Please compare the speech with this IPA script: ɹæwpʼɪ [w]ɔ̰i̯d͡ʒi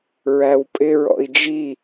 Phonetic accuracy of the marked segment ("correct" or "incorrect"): incorrect